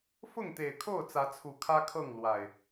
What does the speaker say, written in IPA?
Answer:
f ʊ˥˨ ŋ t̪ e˨˩ ɪ̯ kʰ o˥˨ ʊ̯ t͡s ä˨˦ t͡sʰ u˨˩ kʰ ä˦ kʰ ɤ˥˨ ŋ l w a˨˩ ɪ̯

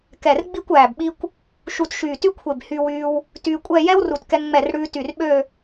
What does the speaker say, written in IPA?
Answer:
k ɛ˧˩ r ɡ͡b i˥˧ kʷ æː˧˩ b ɓ i˥ kʷ | ʃ u˧ t ʃ yː˧˩ t y˥ kʷʰ e˧˩ b h y˧ w yː˧ w | t yː˧ kʷʼ ɛ˥˧ j ɛ˥ w r u˧˩ t k ɛ˧ ŋ ŋ͡m ɛ˧˩ r ɽ ʉː˧ t y˧˩ r ɓ ø˥˧

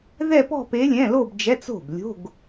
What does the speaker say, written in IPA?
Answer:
ð ɛ˥˧ p ɔ̤˥˧ p e˧˥ lʲ ɛ̃˧˥˧ l o˥˧ b d͡ʒ ɛ˧˥˧ t͡s o̤˥˩ b lʲ o̤˧˥˧ ɡ

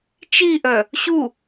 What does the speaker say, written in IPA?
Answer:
t͡ʃ i ʔ œ | ɕ u

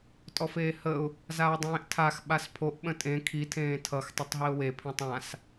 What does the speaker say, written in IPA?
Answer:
tʼ ɔ f eː h ə ʊ̯ | z aː dˤ ẽː ʔ tʰ a x ɓ a s pʰ o ʔ ɓ ə̃ tʼ ẽ kʰ i tʰ ẽː tʰ ʌ x tˤ o tˤ ɦ i ʊ̯ w e pʰ ĩ tˤ ã s

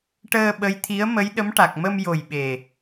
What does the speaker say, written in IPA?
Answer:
ʈ əː˧ ɓ ə˧˥ j t̪ʰ i˧˥ ə̯ m ə˧˥ j ɗ ə˧˥ m ʈ a˨˩ k̚ m ə˧ m j o˨˩ j ɓ e˨˩

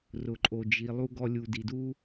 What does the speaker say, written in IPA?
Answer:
r ʊ˨ ǃʼ o˨ d͡ʒ i˨ lˠ u˧ ɡ ɔ˧ lʲ u˨ d i˨ d u˦

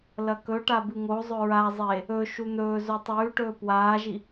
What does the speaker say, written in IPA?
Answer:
l ɐ k ɵ ʈ a b ɨ ŋ o zˤ ɵ ɹ a zˤ e | ɵ ʃ u n̪ ɵː z o tˤ ʉː ʈ ɵː p w aː ʒ i

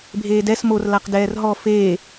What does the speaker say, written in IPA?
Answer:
bʱ eː d ɛ s m o r l a q d ɛː r ɦ ɔ f eː

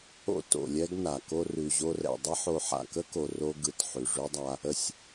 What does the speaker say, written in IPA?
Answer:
o̰˧ t o̰˨ lʲ ɛ˦ ɡ n a˨ k o˧ r ʉ˨ ʑ o˧ r ɛ̰˨ dˤ ə˦ ħ o˧ ħ a̰˨ k ə˦ k o˨ r o˧ ɡ ɯ˨ t ħ ʉ˨ ʐ ʉ˦ dˤ a˦ | ə˧ sʲ

